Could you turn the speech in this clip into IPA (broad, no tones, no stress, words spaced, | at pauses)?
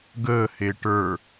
ɡəːhe ʈə˞